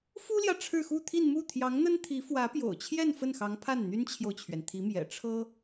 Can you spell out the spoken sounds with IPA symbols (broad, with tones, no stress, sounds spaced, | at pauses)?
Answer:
f u˥ l j ä˨ ʈ͡ʂʰ ɻ̩˥˧ x u˥˧ t̪ʰ i˥˧ n m u˥˩ t̪ʰ j ɑ˧˥ ŋ n̪ ə˥ n t̪ʰ i˧˥ f w ä˧˥ p j o̰˨˩ ʊ̯ t͡ɕʰ j ɛ˥˧ n f ə˥˩ n x ɑ˧˥ ŋ pʰ a˥˩ n n̪ y˥ n t͡ɕʰ j o˨ ʊ̯ t͡ɕʰ ɥ ɛ˩ n t̪ʰ i˧˥ m j ɛ̰˨˩ ʈ͡ʂʰ ɤ˥